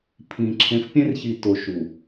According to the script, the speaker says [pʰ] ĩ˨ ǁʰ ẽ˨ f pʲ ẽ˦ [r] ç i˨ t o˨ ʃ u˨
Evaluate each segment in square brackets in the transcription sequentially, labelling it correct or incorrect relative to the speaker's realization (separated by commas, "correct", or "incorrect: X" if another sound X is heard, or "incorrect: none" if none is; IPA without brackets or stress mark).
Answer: correct, correct